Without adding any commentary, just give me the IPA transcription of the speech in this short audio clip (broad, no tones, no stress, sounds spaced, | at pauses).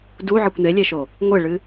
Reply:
d u ʕ ɨ kʷ n e lʲ e ʃ o | ŋʷ e ɭ ɨ